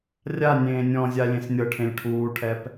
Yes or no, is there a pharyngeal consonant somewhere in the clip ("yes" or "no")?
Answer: no